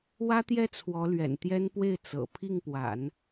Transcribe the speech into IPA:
w ä˥ t̪ j ɛ˥˩ t͡sʰ w ɔ˧˥ l ɥ ɛ̰˨˩ n t̪ j ɛ˥ n p w e˥˩ ɪ̯ t͡s ɤ̰˨˩ pʰ i˥˩ ŋ p w a̰˨˩˦ n

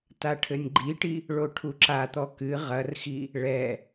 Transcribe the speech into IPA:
t a ʈʰ ɘ nʲ ɡ͡ǃ i ʈ i | ɭ o ʈʰ u ǁ a t̪ ɔ k ɨ ʁ ɐ r x i | ɭ ɛ

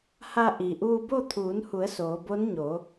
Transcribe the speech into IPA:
h a˧ ʔ i˩ ʔ uː˧ b o˥˨ t̪ʰ uː˩˧ n h u˩˧ ə̯ s oː˩˧ b o˧˥ n ɲ o˩˧

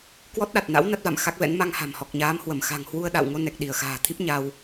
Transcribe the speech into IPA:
k w ɔ˦˥ t̚ ɗ a˨˩ t̚ n a̰˧˥ w n a˦˥ t̚ v a̰˧˨ m x a˦˥ k̚ v ɛ̰˧˥ n m a˧ ŋ h a̤˨˩ m h ɔ˨˩ k̚ ɲ aː˨˦ m h w ə˧˩ m x a̤˨˩ ŋ h w u˧ ə̯ ɗ a̰˧˨ w ŋ o˧ n ɛ˨˩ k̚ ɗ i˧˩ ə̯ x a̤ː˨˩ t̪ʰ i˦˥ p̚ ɲ a˧ w

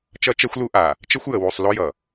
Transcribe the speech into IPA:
t͡ʃ ʌ˦ t͡ʃ ɛ˦ xʷ l u˦ ʔ a˨ | t͡ʃ ə˦ xʷ j ə˨ w u˨ sˤ l o˦ j ʌ˨

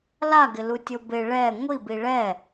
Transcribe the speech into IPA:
l a ɡ ɪ l u tʲ o b ɪ ɭ ɛ ŋʷ i b i ɭ ɛ

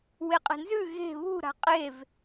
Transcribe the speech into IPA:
w e qʼ e̤ n z ʉ ɣ e̤ β ṳ ɾ a̤ qʼ e v

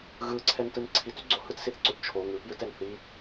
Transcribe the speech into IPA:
ɣ ɯ ǀʰ ɛ n t ɯ n ǀʰ i t y ɡ͡ǀ o h ɯ t s i θ ǀ o t t͡ʃʰ o ŋ ɯ p j ɯ t ɛ n θ i

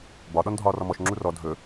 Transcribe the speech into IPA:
b ɒ ɗ ɔ n dʱ ɒː r ɔ m ɔ ʃ ŋ͡ǁ u r ɔ dʱ ɵ

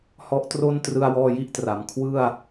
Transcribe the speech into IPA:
h ɔ˦˥ ʔ t r o˥˩ n t r ɯ˧ a̯ w ɔː˧ j i˦˥ ʔ t r a˩˦ m kʰ w ɯ˥˩ a̯

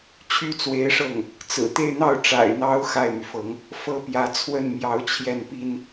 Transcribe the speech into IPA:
t͡ɕʰ y˥˩ t͡s w e˧˥ ɪ̯ ʂ ɤ˥˩ ŋ | t͡s ɹ̩˨˩ t̪ e˥˧ ɪ̯ n̪ ɑ˥˩ ʊ̯ ʈ͡ʂ a̰˨˩ ɪ̯ n̪ ɑ˧˥ ʊ̯ x a˥˩ ɪ̯ m y˩ f ɤ˧˥ ŋ | f ɤ˥ p j ä˧˥ t͡sʰ w ə˥˩ n m j ɑ˧˥ ʊ̯ t͡ɕʰ j ɛ˥˩ n p i˥ n

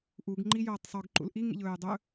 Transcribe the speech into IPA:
ʔ u ɡ ŋ͡ǃ i j oː tˤ sˤ ɵ ɡ ǃ ṵ l ʔ i ŋ ḭ ʎ ɵː j dˤ ɵ

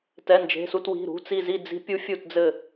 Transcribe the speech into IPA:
t ɛ˩˧˩ n d͡ʒ e̤˩˧˩ s u˧˩ t w i̤˩˧˩ ɾ ṳ˩˧˩ t͡s i˧˩ z i˧˩ d͡z i̤˨˦ pʲ u˨˦ fʲ u˧˩ t d͡z ɘ˧˩

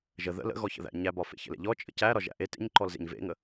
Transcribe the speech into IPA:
ʒ ə ð ə̰ l ə̰ ɣ ɔ ç ə̰ ð æ̰ ɲ æ b ɒ f ḛ ç ə̰ l ḛ ʎ ɔ t͡ʃʼ ə̰ c æ ɾ ɒ ʒ æ̰ ʔ e t ḛ ɲ ǃ ɔ l z ḛ ɲ v ḛ ŋ ə

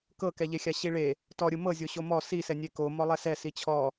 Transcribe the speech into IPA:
k ɤ k ɛ ʎ e xʲ a ɕ i ɭ e | t ɔ ɾʲ ɯ m ɤ zʲ o ɕ o m ɔ s i s ɛ nʲ e k o m ɔ lˠ ɛ s ɛ s i t͡ɕʰ ɔ

